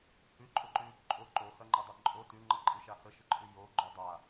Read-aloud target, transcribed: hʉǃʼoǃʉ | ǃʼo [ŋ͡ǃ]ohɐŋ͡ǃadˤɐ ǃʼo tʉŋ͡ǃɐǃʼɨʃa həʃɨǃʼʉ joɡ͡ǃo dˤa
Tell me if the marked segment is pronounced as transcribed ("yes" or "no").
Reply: no